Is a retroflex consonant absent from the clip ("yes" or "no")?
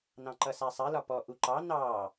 yes